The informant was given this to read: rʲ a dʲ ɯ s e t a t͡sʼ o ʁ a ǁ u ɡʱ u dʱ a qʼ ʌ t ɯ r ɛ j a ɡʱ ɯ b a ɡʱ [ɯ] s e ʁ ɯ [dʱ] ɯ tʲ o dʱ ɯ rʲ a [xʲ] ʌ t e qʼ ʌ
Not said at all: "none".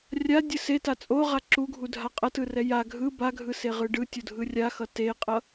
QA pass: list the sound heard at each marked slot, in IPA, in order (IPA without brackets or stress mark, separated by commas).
ɯ, ɖ, x